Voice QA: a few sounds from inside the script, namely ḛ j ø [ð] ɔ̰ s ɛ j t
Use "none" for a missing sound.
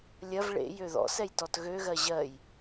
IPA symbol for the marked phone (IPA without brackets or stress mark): ð